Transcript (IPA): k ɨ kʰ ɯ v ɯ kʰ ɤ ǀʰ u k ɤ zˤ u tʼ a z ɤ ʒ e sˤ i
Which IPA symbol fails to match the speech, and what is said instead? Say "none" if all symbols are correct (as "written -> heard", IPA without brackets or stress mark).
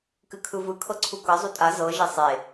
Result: i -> e